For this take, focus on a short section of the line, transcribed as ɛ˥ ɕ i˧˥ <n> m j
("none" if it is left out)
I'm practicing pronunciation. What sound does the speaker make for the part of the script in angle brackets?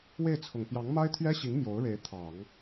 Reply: ŋ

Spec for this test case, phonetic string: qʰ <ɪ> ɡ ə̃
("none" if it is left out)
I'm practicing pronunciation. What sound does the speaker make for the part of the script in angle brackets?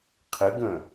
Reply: ɪ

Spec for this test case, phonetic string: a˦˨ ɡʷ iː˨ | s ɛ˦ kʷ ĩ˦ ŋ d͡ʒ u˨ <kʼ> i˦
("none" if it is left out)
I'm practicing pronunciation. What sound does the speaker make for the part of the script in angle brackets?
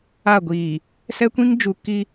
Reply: k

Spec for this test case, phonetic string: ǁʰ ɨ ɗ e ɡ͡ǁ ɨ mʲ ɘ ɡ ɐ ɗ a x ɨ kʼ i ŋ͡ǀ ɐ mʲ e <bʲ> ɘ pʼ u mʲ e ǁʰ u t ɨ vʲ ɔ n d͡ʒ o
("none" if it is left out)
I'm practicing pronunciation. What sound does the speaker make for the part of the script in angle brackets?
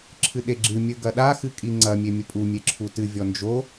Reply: mʲ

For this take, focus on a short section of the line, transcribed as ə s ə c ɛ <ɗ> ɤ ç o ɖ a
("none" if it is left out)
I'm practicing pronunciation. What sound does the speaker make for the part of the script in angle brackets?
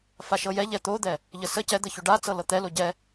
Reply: d̪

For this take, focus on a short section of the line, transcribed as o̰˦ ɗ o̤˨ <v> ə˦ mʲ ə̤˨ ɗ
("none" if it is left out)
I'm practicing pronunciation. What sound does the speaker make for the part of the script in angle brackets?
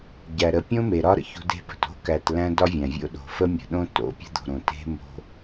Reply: f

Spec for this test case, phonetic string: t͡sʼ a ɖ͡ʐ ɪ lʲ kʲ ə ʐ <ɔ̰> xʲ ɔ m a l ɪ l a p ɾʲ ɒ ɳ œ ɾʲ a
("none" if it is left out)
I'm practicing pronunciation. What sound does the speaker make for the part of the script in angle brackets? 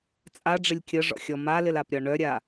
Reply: ɔ̰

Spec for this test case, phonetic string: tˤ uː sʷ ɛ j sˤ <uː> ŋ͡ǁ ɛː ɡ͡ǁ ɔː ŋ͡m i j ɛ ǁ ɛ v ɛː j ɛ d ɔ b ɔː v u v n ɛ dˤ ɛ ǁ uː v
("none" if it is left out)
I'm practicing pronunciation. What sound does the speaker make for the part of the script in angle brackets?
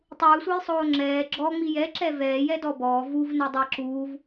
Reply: oː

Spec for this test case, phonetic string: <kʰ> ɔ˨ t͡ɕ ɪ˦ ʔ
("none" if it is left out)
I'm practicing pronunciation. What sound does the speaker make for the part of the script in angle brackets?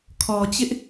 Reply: kʰ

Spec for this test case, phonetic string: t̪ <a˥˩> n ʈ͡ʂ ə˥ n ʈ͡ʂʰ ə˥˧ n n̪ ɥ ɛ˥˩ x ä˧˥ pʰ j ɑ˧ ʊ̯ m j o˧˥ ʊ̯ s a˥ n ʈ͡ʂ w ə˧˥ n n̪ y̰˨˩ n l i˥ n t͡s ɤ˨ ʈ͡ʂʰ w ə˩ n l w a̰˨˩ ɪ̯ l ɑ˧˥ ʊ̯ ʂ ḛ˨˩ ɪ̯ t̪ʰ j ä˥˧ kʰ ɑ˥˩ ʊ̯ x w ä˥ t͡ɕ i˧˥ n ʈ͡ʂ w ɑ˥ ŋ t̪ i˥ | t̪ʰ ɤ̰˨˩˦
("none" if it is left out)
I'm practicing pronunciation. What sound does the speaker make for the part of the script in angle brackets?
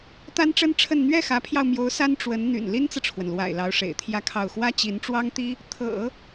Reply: a˥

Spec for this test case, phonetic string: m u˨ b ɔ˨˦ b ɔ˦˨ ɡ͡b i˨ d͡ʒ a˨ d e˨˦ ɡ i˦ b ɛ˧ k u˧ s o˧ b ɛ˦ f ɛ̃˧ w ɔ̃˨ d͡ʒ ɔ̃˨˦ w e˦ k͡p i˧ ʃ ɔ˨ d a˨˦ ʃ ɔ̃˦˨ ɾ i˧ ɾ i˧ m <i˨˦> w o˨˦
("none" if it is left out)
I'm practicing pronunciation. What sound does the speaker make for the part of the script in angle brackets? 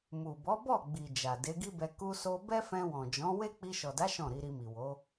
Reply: i˨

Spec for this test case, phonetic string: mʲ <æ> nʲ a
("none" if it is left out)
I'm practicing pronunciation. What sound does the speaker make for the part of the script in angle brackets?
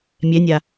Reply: ɛ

